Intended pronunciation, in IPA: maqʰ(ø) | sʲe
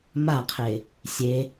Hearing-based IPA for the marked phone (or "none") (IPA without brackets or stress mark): e